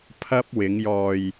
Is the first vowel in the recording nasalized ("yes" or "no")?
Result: no